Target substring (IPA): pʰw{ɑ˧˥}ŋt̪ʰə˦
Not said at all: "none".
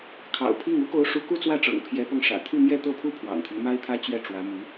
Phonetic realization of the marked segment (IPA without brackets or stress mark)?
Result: ɑ̰˨˩